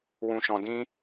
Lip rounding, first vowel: rounded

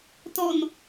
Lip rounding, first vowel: rounded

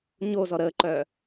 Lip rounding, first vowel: rounded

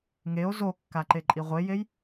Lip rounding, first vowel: unrounded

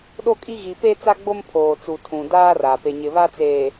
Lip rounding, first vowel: rounded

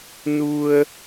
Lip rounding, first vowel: rounded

